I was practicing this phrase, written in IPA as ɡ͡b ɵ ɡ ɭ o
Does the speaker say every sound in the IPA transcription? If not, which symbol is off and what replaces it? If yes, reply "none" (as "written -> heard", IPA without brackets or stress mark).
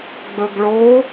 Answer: none